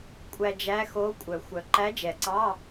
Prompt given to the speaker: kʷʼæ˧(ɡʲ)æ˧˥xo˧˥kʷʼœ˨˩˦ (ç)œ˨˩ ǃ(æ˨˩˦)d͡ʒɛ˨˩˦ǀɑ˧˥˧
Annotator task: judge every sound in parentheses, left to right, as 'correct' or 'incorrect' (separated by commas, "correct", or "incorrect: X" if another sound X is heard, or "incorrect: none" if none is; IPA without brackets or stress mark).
incorrect: d͡ʒ, incorrect: xʷ, incorrect: æ˧˥